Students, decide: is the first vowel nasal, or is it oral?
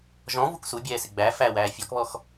nasal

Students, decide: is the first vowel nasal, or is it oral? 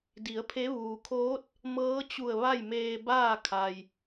oral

